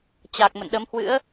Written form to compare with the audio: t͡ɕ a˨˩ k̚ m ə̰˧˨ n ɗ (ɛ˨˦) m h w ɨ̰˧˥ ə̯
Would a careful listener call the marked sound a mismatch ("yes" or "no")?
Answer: yes